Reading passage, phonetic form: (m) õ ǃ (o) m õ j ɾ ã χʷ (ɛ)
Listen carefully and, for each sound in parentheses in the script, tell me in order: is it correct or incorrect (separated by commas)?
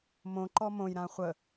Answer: correct, incorrect, incorrect